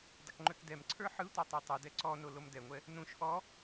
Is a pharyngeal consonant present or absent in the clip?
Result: present